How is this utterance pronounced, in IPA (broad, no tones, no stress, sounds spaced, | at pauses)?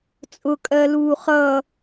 t͡sʼ ʊ kʼ ɜ l uː χ ʌ